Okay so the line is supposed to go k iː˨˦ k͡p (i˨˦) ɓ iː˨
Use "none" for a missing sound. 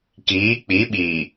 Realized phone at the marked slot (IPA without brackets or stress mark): i˨˦